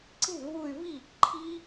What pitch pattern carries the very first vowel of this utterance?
falling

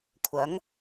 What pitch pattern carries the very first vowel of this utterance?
rising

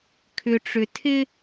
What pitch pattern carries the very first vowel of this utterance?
low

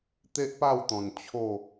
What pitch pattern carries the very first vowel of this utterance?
high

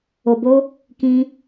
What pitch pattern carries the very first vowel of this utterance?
low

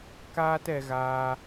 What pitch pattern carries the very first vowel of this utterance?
high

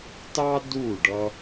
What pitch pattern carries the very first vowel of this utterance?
high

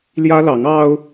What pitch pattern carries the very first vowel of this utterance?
high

